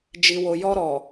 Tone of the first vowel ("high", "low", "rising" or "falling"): low